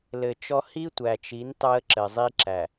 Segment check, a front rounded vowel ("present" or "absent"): absent